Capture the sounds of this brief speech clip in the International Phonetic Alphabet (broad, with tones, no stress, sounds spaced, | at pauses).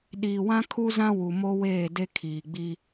ɗ iː˨ w ã˦ kʰ u˦ z ã˦ w u˨ m o˦ w eː˦˨ d e˦ kʰ iː˨ ɡ͡b i˦